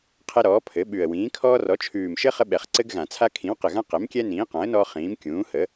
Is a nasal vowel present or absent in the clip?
present